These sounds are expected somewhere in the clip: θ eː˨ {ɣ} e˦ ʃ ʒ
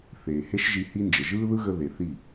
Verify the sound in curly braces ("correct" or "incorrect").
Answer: incorrect